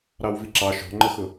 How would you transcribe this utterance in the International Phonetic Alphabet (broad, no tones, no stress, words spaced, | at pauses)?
ɾɑwviǁɑ ʃɔ̤ŋ͡ǃəxʊ